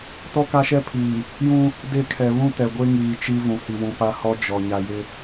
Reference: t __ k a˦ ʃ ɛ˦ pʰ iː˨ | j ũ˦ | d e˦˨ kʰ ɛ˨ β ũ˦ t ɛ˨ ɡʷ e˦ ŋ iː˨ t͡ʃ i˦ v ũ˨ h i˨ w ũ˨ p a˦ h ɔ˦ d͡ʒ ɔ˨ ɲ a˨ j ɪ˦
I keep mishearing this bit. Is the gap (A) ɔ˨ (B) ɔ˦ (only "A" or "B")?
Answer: B